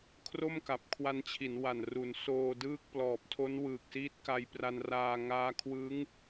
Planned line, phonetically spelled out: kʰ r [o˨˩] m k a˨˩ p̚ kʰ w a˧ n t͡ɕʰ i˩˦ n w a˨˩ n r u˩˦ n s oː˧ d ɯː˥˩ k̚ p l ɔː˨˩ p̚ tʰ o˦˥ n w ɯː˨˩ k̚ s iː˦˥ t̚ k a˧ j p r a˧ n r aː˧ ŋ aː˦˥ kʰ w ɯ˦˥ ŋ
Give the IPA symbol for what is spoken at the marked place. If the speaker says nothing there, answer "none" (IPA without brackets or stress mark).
o˥˩